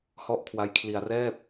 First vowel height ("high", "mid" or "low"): mid